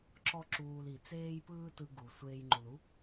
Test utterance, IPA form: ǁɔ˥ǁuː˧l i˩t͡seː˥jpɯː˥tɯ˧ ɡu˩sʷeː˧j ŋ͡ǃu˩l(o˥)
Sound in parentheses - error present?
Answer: yes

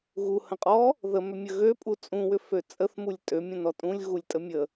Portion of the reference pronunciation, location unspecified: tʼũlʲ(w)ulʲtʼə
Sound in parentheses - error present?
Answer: yes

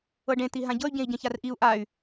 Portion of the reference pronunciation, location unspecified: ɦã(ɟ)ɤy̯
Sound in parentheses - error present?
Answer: no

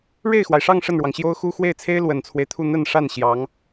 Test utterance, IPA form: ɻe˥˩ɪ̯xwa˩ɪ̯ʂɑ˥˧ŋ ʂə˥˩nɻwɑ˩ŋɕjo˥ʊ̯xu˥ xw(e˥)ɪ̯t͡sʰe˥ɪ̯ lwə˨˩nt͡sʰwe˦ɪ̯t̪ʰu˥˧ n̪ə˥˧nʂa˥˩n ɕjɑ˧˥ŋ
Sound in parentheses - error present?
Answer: yes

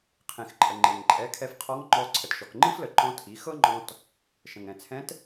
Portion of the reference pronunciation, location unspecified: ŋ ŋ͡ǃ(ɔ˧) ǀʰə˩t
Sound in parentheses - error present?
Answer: no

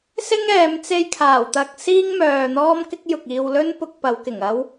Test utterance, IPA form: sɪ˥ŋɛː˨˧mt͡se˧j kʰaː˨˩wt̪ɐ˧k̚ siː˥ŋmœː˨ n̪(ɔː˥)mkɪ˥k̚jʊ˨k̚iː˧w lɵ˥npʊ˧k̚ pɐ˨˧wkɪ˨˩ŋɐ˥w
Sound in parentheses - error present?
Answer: no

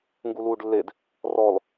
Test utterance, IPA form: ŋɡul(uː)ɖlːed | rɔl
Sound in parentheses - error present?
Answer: no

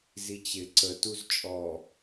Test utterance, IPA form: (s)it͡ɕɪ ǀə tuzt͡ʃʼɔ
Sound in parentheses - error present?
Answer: yes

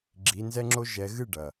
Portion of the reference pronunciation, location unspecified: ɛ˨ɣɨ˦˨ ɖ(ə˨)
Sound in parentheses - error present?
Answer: yes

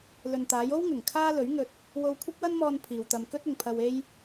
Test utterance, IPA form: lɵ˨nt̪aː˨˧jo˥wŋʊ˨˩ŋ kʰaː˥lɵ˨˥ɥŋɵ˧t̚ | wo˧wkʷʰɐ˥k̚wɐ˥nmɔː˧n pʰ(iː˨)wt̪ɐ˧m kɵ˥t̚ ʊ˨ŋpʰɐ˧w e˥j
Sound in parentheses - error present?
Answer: no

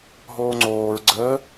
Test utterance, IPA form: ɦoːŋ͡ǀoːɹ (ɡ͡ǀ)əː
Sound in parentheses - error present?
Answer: no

